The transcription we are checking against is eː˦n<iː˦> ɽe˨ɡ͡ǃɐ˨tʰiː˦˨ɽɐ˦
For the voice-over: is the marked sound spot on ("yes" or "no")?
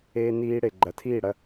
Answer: yes